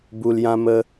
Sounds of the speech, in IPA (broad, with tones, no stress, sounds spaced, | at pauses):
b u˨ l j ã˧ m ə˧